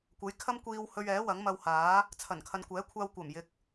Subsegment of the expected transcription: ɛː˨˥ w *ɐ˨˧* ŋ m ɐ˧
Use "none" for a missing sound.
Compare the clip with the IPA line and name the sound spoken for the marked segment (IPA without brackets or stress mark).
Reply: ɐ˨˥